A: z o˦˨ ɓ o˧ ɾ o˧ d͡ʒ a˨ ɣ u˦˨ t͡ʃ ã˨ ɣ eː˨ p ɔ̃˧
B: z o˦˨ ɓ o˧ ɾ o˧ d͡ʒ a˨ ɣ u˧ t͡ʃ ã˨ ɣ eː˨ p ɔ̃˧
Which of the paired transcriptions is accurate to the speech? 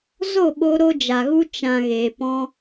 B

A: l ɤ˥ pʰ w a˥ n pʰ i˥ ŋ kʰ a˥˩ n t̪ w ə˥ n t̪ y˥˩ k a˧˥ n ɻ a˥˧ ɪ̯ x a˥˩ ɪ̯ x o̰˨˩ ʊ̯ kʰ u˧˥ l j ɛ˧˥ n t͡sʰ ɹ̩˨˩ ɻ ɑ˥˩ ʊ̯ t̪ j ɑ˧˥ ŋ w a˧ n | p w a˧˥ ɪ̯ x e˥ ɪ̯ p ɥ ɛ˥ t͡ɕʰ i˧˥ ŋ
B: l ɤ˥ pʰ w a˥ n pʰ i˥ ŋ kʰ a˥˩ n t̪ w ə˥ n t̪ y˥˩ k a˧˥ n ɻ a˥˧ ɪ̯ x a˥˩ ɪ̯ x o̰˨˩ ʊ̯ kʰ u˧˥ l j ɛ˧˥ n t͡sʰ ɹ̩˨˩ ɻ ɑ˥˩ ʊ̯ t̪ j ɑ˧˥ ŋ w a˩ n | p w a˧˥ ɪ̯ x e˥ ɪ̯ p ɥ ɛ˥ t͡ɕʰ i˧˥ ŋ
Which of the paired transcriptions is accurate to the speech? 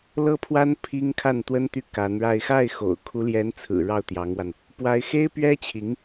A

